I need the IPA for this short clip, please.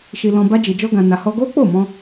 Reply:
ʃ i˧ l ɔ̃˧ b a˦ d͡ʒ i˧ d͡ʒ ɔ˦ ɡ ã˧ n a˧ h ɔ˦ ɡ o˦ k͡p o˦˨ m ɔ̃˧

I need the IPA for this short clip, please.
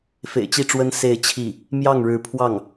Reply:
f ḛ˨˩ ɪ̯ t͡ɕ i˥˩ ʈ͡ʂ w ə˥ n s e˥˧ ɪ̯ t͡ɕʰ i˥˩ | m j ɑ˥˩ ŋ ɻ ɻ̩˧˥ pʰ w ɑ˥˩ ŋ

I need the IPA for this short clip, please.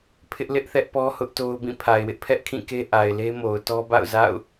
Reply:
pʰ ɪ˦ ʔ l ɪ˦ ʔ θ ɛ˦ ʔ p ɔ˦ h ʊ˦ ʔ t o˦ ʊ̯ b ĩ˦˨ pʰ a˨ ɪ̯ w ɪ˦ ʔ pʰ ɛ˦ ʔ kʰ ĩ˦˨ k e˦ ʔ a˨ ɪ̯ l e˦ m o˨ ʊ̯ t ɔ˦ b a̰˦˨ ʊ̯ z a̰˦˨ ʊ̯

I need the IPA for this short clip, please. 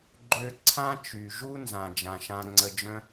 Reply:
ɡ͡ǃ ø˧ ǀʰ ã˦ t͡ʃ y˨ ʒ u˦ n z ã˨ d͡ʒ ã˨ ʃ ã˧ ŋ͡ǀ ə˧ d͡ʒ œ̃˦

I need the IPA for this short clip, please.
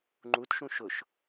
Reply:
ŋ͡ǃ u t ʃ ũ ʃ ʊ ʃ

